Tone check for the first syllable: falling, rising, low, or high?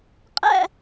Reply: falling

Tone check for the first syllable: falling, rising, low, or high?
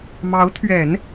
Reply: rising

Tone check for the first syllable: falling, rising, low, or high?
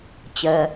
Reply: low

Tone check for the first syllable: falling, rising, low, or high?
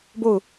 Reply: falling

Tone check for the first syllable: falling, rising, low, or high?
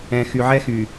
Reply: low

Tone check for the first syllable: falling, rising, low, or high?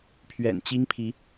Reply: low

